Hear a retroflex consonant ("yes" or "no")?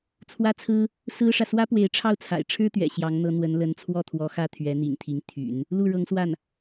yes